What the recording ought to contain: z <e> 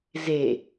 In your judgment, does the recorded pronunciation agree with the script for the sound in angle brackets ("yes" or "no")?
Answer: yes